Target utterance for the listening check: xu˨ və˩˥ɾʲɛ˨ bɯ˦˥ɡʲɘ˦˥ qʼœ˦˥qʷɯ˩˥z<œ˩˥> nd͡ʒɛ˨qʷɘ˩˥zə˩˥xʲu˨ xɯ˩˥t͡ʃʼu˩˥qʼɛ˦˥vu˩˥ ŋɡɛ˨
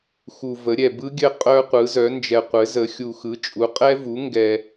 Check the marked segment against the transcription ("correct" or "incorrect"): correct